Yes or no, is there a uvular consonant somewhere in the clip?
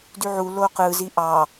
yes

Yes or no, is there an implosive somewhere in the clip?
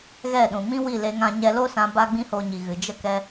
yes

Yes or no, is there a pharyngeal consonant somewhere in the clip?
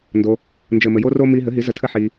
yes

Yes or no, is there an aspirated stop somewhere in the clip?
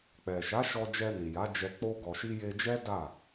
no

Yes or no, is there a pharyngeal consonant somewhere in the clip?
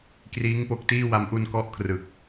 no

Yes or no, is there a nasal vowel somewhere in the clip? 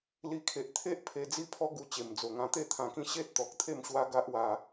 yes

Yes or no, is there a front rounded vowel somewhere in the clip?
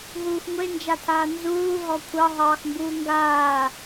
no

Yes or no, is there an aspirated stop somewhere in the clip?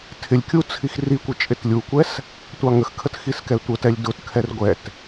yes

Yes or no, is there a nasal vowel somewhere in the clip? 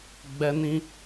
yes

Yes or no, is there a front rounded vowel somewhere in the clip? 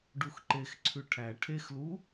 no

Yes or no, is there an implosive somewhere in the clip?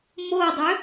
no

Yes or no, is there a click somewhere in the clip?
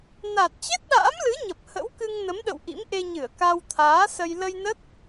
no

